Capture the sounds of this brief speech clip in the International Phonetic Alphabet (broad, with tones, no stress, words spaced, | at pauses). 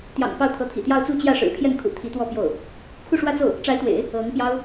t̪jɑ̰˨˩ŋ pɑ˥˩ʊ̯t̪ʰɤ˧˥t̪ʰḭ˨˩t̪jɑ˥˧ʊ̯ t͡su˥˧t͡ɕjä˥˩ ʂɻ̩˨˩pʰjɛ˥˩nkʰṵ˨˩ t̪ʰi˧˥t̪wɔ˥˧ pjo˥˩ʊ̯ | kʰu˥˧ʂwä˥˧t͡so˥˩ʊ̯ | ʈ͡ʂa˧˥ɪ̯t̪wḛ˨˩˦ɪ̯ | ɤ˧˥ŋpjɑ˥ʊ̯